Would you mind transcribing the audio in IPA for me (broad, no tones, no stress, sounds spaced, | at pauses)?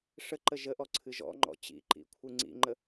ʂ ə ǃ ə ʒ ə ʔ ɔ ǀʰ ɨ ʒ ɔ̰ ŋ͡ǃ ɔ̰ t͡ɕ ḭ ǃ ḭ kʷʰ ɨ ŋ͡ǀ ḭ ŋ͡ǃ ə